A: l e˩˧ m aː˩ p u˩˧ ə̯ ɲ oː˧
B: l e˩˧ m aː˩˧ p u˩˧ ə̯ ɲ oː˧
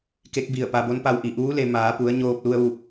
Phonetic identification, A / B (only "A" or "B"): B